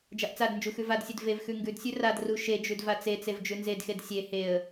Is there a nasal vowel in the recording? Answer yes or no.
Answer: no